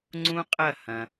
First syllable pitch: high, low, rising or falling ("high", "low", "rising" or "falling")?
high